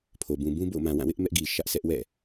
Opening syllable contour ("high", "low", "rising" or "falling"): low